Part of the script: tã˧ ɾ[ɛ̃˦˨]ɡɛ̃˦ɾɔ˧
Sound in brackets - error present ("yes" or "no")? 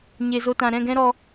no